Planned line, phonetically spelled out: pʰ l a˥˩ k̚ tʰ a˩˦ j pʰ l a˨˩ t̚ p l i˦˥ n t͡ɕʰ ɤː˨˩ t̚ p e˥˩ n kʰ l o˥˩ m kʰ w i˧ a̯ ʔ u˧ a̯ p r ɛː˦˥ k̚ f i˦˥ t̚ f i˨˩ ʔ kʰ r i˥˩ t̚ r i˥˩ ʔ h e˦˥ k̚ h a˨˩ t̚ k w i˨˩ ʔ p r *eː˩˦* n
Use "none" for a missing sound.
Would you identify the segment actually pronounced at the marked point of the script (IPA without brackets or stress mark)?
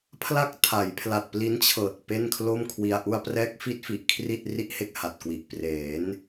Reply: eː˩˦